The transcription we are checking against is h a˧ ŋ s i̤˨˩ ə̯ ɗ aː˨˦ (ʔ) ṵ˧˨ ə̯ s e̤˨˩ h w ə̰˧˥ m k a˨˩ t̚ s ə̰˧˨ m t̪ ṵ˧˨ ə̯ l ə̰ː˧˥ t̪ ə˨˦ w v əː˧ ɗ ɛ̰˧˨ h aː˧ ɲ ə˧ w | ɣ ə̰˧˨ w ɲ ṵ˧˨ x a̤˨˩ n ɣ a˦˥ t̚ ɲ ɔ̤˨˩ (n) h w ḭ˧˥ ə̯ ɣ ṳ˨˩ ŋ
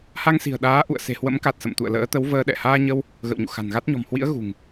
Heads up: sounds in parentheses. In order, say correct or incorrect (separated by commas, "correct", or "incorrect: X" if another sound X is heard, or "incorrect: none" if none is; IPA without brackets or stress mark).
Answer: correct, incorrect: m